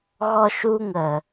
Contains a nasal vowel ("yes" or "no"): no